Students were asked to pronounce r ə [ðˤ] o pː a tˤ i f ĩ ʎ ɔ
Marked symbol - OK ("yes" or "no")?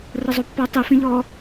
no